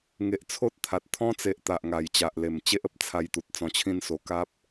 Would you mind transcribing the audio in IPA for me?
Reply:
ŋ e˨ ʔ t͡sʰ o˦ t̚ t̪ʰ a˨ t̚ t̪ʰ ɔ̃˦ t͡s e˨ ʔ t̪ a˨ ʔ ŋ a˨˩ j t͡ɕ a˨ ʔ l e˨˩ m t͡ɕ e˦ ʔ ə˦ p̚ t͡sʰ a˧ j t̪ u˨ t̚ t͡s ɔ̃˧ t͡ɕʰ ĩ˦ n s o˧ k a˦ p̚

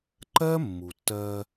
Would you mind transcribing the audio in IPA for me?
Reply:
ǃ ɜ˦ mː u˨ tː ɜ˦

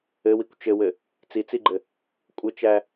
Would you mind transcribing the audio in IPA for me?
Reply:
ɘ w i kʷ t͡ʃ ɘ w ɘ | t͡s i t͡s i ɡ͡ǃ ɘ | kʷʼ ɘ t͡ʃ æ

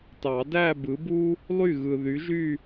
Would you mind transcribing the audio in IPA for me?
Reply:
t ɑ˨˩˦ d æ˥˧ b ɯ˨˥ b u˥ | lˠ y˥˩ ɣ ɯ˨ ð y˨˥ ʒ y˥˧

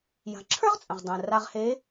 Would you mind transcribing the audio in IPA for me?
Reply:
j a̤˩˧ ǁʰ ə˞˥ ʁ t͡sʼ ə̃˩ ʁ dˤ ɛ̃˩ r a˧ ʁ h e˧˥

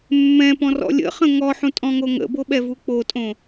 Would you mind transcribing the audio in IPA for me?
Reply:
mː ɛ̃ p ɔ̃ r ɔ̰ lʲ ə̰ χ ə̃ ŋ ɔ ħ ũ tʼ ɔ̃ ŋ o ŋ ə̰ b o ɓ ɛ v u k͡p o tʼ õ

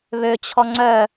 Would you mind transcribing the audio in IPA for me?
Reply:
β ø t͡ɕʰ ɔ ŋ͡ǀ œ

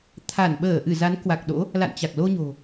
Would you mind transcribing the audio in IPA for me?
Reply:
t̪ʰ a˧˩ n ɓ əː˧˩ ʔ ɨ˧˩ z a˨˦ n k w a˨˩ k̚ ɗ o̰˧˥ | l a̰˧˨ n t͡ɕ a˨˩ k̚ l o˧ ɲ o̤˨˩

